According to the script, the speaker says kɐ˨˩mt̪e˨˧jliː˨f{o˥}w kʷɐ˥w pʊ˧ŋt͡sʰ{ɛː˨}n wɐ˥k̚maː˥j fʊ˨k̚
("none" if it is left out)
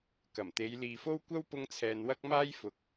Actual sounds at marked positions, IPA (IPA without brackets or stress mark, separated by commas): o˥, ɛː˨